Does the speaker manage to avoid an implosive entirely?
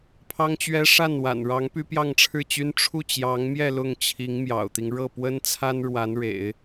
yes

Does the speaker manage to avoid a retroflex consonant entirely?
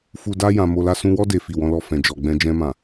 yes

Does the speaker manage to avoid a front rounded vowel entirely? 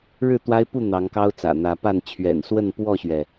yes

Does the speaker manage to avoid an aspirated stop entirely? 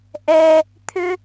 no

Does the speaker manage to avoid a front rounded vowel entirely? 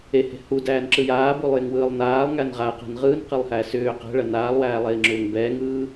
no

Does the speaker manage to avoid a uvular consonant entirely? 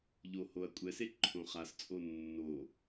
no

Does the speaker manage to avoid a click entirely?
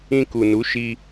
yes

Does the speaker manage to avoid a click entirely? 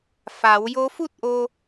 yes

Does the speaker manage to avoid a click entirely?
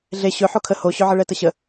yes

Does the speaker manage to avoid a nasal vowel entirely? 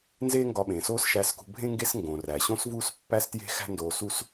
no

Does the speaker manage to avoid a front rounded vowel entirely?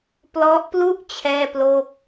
yes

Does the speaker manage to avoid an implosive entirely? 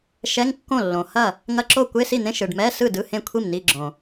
yes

